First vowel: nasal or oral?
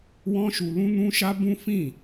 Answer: nasal